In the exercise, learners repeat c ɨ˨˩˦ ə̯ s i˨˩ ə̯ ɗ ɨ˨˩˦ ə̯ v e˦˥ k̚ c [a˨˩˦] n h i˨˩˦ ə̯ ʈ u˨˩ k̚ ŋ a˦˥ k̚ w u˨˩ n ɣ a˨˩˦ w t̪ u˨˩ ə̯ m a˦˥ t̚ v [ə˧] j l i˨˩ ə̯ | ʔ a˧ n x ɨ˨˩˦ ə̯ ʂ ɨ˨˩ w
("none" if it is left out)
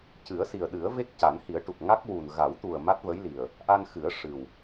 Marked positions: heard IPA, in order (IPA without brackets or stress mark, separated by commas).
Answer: a˨˩˦, ə˧˥